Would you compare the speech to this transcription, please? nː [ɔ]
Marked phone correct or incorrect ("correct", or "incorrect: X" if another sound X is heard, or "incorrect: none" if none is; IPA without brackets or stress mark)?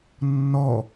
correct